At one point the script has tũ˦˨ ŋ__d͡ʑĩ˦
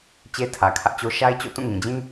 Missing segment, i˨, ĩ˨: ĩ˨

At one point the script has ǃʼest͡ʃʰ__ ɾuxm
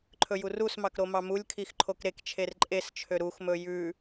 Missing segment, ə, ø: ø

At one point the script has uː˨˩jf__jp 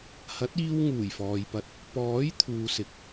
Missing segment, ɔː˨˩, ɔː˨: ɔː˨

